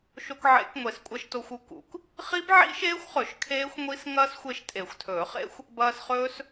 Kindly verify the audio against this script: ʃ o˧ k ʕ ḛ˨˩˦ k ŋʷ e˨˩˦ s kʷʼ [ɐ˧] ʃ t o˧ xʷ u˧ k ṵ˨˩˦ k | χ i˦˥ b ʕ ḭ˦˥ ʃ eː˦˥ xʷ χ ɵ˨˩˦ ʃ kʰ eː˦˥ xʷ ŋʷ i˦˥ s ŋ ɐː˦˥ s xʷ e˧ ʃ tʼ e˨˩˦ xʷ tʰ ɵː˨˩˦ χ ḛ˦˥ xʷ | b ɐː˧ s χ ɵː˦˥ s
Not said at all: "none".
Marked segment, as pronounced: ɐ˧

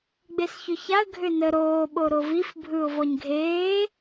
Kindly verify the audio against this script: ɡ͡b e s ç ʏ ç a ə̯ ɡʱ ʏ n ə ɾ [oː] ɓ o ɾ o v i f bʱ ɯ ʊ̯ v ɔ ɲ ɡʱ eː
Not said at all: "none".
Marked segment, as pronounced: oː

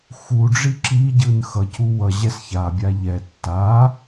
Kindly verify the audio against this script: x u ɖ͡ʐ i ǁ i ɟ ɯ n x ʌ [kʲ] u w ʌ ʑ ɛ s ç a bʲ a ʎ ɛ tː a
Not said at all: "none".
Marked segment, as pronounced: c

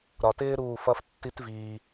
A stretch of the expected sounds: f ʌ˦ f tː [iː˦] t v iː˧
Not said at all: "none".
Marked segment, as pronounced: i˦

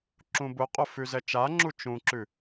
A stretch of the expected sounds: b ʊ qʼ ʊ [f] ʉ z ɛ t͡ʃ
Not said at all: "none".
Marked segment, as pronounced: f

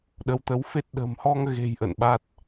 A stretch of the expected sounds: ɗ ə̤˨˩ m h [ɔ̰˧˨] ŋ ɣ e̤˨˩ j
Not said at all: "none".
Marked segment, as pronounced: ɔ˧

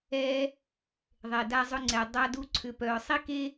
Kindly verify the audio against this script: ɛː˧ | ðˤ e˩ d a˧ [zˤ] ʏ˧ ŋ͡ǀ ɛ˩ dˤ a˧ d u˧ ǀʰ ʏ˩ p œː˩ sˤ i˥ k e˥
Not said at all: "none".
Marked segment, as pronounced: zˤ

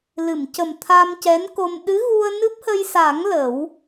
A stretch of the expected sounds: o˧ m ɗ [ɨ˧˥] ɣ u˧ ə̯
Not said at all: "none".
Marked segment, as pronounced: ɨ˧˥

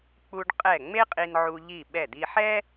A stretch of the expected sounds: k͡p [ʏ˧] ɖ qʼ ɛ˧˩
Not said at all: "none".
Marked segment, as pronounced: u˧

